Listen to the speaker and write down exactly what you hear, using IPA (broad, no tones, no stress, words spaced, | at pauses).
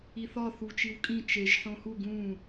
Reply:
iθɒ θut͡ʃiwkʼĩ t͡ʃeʒ ħõhu ɡũ